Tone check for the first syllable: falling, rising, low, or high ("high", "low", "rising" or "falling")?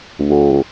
low